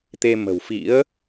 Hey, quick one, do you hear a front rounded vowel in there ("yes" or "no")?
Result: no